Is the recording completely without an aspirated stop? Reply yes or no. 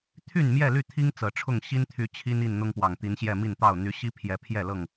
no